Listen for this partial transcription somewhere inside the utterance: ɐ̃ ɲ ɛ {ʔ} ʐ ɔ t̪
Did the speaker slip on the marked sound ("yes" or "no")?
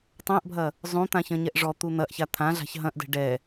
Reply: no